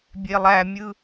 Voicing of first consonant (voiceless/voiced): voiced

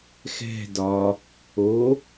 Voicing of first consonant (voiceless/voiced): voiceless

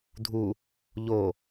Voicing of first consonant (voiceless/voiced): voiced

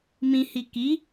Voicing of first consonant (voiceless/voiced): voiced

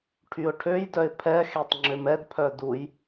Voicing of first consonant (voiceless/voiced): voiceless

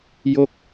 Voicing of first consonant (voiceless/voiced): voiced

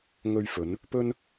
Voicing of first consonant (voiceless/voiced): voiced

